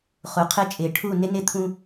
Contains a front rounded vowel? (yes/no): no